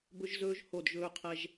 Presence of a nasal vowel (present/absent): absent